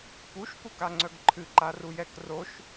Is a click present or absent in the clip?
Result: present